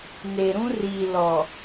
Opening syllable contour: low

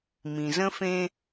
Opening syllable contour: low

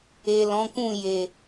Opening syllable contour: low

